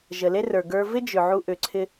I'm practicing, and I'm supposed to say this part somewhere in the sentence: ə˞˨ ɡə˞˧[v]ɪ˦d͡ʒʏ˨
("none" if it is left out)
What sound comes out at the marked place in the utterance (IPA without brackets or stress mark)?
v